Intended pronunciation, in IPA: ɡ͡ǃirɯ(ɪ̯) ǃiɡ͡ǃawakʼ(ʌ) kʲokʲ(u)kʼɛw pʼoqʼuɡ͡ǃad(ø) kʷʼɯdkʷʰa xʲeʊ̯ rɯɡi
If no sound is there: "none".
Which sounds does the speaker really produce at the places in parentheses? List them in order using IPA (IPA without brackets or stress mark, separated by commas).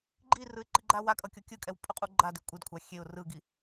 ɪ̯, ʌ, ɯ, e